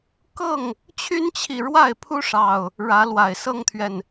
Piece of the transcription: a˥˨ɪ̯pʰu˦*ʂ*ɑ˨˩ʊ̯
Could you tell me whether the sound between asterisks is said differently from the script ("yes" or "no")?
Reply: no